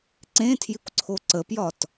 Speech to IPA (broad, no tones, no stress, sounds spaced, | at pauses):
ǀ ẽ tʰ j ɪ kʷ ǀʰ o ǀ ə p j ɒ t